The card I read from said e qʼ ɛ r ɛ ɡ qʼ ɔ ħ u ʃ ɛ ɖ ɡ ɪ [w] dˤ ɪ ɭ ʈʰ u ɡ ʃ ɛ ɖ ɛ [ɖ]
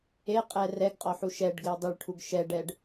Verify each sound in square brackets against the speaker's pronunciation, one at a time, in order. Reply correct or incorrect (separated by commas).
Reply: correct, correct